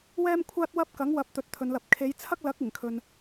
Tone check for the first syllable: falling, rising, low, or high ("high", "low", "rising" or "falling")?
high